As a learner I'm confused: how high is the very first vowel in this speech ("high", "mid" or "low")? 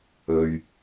mid